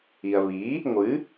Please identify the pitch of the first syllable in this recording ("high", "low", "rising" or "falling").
low